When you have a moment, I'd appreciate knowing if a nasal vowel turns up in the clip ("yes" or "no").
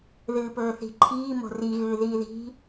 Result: no